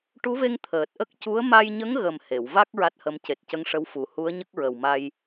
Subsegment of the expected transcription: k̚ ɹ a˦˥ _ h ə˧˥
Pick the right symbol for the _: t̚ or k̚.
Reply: t̚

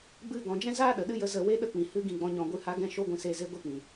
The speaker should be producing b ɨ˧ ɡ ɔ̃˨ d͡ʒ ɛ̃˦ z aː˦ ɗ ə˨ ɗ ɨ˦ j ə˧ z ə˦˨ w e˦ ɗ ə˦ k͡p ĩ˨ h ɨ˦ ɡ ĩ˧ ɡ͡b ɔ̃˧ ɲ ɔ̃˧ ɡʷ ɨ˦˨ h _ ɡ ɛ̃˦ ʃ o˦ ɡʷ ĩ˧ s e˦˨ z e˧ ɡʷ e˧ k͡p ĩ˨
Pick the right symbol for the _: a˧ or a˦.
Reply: a˦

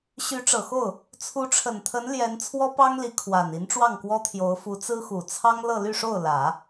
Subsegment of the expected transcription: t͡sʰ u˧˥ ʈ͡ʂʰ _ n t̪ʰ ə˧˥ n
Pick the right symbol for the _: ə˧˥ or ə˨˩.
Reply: ə˨˩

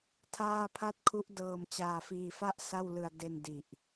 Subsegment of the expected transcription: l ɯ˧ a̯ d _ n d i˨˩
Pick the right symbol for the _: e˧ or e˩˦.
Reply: e˧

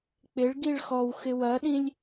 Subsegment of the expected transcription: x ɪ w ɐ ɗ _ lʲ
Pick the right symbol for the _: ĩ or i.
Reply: ĩ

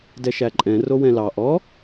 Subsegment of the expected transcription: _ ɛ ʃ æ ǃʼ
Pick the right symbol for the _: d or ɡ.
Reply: d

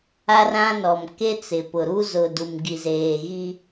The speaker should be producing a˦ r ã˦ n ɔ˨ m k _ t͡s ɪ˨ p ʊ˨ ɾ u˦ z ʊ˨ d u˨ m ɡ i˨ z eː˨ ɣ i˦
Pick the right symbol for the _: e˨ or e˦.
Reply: e˦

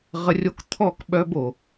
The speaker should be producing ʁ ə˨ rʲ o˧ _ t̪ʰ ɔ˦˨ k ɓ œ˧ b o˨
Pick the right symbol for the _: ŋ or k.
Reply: k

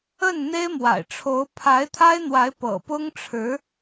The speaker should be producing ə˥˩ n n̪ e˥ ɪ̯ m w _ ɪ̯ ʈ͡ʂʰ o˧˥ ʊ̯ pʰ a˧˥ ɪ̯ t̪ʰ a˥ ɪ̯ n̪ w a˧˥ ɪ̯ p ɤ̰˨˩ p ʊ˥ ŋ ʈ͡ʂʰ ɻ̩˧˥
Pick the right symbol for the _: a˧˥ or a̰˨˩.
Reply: a̰˨˩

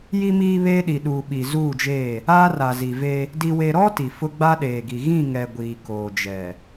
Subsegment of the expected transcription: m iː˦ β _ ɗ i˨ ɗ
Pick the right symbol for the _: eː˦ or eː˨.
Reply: eː˦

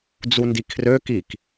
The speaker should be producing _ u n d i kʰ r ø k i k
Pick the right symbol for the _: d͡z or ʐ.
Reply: d͡z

